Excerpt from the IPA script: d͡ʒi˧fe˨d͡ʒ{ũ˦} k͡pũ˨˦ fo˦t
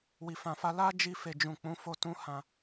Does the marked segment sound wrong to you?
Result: yes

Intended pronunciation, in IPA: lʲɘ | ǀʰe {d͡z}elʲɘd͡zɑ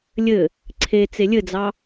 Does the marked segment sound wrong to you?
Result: yes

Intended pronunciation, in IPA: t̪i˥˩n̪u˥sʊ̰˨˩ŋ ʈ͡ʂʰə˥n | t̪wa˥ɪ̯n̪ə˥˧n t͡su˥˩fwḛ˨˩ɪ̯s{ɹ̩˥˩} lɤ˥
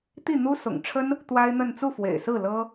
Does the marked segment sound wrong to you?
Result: no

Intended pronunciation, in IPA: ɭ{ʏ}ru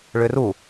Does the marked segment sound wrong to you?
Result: no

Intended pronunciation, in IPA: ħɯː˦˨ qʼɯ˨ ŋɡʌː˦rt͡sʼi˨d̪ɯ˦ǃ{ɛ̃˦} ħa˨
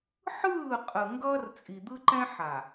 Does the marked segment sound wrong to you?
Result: no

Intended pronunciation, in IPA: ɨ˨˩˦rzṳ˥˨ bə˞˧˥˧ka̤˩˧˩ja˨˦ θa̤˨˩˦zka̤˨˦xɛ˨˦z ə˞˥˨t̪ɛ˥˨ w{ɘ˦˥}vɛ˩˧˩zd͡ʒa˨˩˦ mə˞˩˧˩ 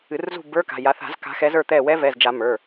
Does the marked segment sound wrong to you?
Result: yes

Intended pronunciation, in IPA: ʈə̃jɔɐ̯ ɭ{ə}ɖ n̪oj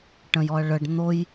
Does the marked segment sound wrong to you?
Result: no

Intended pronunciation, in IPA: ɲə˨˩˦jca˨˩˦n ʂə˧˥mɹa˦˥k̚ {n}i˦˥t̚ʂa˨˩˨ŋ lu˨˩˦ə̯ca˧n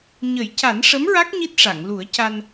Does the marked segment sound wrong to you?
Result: yes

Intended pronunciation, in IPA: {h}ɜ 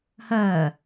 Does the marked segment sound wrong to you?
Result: no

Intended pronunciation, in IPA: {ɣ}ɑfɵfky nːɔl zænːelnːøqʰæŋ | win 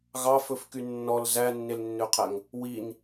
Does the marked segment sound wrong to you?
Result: no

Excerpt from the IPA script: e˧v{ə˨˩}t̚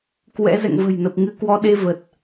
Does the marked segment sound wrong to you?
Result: no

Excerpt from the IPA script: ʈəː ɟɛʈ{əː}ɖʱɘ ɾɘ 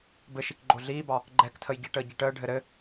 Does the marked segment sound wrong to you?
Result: no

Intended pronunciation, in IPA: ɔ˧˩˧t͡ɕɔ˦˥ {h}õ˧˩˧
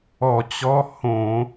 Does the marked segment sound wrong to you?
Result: no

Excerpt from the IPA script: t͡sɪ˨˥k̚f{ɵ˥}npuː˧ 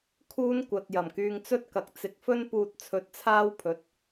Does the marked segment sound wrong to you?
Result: no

